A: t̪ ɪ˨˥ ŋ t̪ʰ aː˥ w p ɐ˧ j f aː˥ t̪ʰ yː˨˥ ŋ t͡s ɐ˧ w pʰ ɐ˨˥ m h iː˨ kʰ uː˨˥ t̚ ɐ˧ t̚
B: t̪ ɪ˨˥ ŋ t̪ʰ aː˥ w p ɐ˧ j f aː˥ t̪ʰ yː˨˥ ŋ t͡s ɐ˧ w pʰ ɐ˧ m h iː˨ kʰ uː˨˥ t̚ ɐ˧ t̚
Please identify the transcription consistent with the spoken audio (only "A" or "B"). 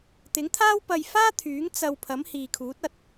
A